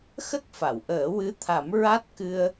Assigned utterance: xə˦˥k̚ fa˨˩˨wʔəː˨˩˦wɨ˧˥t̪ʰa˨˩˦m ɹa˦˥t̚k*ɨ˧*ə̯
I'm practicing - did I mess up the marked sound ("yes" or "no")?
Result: no